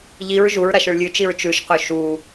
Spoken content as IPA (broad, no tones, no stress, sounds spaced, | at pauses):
ʎ i ɹ ʒ u ɹ ɾ a ʃ ɵ ɭ lʲ ʉ t͡ʃ i ɹ t͡ʃ ʉ ʃ q ɵ ʃ u